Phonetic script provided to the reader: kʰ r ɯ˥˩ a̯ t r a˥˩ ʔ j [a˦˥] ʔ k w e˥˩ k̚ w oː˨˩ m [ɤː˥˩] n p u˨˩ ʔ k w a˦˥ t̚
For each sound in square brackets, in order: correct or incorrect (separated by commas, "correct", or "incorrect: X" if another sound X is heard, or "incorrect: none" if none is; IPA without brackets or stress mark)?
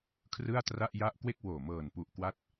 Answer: incorrect: a˥˩, incorrect: ɤː˨˩